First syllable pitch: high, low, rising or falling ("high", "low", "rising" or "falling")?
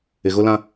low